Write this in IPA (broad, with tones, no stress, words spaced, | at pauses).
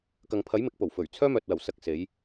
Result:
kɐ˨ŋpʰɐ˨˥j mɪ˨˥k̚po˨˩w fɵ˨˩ɥ t͡sʰœː˥mœː˨t̚wɐ˨˩w sɐ˥k̚se˨˥j